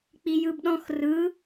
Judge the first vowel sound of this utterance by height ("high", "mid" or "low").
high